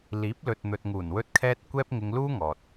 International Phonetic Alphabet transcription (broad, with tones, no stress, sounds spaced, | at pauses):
l iː˨˥ p̚ l ɵ˨ t̚ n̪ ɵ˨ t̚ ŋ uː˨˩ n w ɵ˧ t̚ kʰ ɛː˧ t̚ kʷ ɛː˥ p̚ ŋ ɪ˧ ŋ l uː˥ ŋ ɔː˨ t̚